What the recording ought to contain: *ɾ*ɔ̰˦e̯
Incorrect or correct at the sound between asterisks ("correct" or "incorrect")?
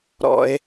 correct